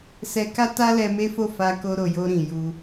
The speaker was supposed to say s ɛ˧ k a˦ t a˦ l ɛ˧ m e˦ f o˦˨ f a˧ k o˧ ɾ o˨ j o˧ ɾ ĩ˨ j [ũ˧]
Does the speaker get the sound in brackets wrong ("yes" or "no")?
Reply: yes